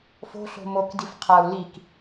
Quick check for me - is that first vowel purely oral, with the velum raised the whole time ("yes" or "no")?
yes